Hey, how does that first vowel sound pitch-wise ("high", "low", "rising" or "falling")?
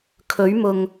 rising